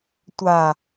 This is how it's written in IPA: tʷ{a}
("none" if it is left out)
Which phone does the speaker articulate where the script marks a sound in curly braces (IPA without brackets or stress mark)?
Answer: a